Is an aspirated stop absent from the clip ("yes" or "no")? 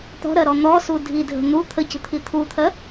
no